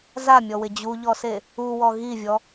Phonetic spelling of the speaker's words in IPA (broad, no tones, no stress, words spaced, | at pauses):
zamʲɔwɪ d͡ʑuʎɔse | uwɔ ɣivʲɔ